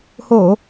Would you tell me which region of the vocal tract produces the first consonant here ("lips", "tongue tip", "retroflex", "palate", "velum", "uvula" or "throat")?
throat